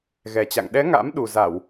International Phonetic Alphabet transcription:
ɣ ɛ˨˩ t͡ɕ a̰˧˨ ŋ ɗ ɛ˨˦ ŋ a̰˧˥ m ɗ u˨˩ z a˧˩˨ w

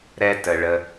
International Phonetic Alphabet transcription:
ɾ ɛ˦ t ə˨ ɭ ə˧

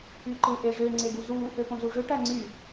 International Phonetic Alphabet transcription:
y ǃ ɯ ʔ e ʐ ø ŋ͡ǀ e ɡ u z u | ø p õ z u ʐ ø ʈ æ ŋ͡ǀ y

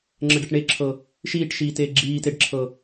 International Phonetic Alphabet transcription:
ŋ͡ǁ ə ɖ ə ʈ ɳ e ǁʰ ɤ | ʃ iː ʈ ʃ iː t eː ɡ͡ǁ iː t e ɖ ǁʰ ɤ

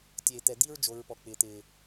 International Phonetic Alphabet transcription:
tʲ eː˨ t̪ ɛ˨ d̪ i˦ ɹ d͡ʒ o˨˦ ɹ p ɔ˨ k͡p ɪː˨ t̪ ɪː˨

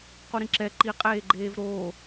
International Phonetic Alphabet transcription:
q u ɾ ĩ ǁ ɛ ǃ i qʼ eː ɡ͡ǃ eː v ɾ oː

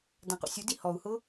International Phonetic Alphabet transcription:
d ã q ṵ sʲ u d i h ɔ u̯ h ʊ

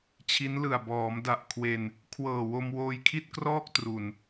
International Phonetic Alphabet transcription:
t͡ɕʰ i˦˥ n l ɯ˨˩ a̯ b ɔː˩˦ m d a˨˩ ʔ kʰ w e˧ n | kʰ w ɤː˨˩ w o˧ m w oː˧ j kʰ i˥˩ t̚ k r ɔː˥˩ k̚ t r u˨˩ n

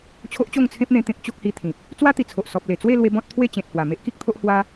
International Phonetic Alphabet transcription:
t͡ɕʰ o˦ ʔ t͡ɕ o˥˧ ŋ t͡sʰ ẽ˦ p̚ n̪ ẽ˧ t̪ ẽ˦ k̚ t͡ɕ o˦ k̚ h i˧ t̪ʰ ĩ˨ p̚ | t͡s w a˦ t̪ i˨˩ t͡sʰ o˨ ʔ s ɔ˨ p̚ l e˨˩ t͡s w e˥˧ l w e˧ b ɔ̃˦ t̚ t̪ʰ w e˥˧ t͡ɕ ẽ˨ t̚ h w a˨˩ m e˦ ʔ k i˦ k̚ t̪ʰ o˦ ʔ h w a˦

